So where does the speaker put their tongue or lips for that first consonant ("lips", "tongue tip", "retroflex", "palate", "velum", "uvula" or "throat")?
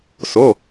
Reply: tongue tip